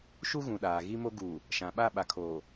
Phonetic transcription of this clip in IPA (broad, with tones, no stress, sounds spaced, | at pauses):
ʃ u˦ ɣ ũ˨ ɗ aː˨ ɣ i˦ m o˦ ɡ uː˨ | ʃ ã˨ ɓ a˦˨ ɓ a˨ kʰ oː˨